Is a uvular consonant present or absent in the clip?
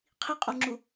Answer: present